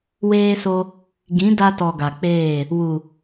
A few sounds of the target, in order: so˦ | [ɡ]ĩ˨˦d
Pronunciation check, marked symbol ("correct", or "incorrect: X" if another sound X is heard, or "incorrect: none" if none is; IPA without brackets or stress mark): correct